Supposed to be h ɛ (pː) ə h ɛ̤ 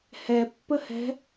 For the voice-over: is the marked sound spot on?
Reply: yes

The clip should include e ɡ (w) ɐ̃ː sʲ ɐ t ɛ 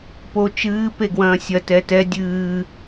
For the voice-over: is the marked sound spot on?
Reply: yes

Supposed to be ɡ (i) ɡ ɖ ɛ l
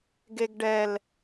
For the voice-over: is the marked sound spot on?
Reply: no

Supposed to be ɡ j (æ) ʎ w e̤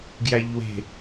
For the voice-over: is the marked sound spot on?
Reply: yes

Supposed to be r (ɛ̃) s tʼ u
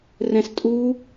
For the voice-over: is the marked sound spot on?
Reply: yes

